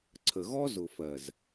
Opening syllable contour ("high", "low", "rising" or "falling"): low